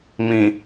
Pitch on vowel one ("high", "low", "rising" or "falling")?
low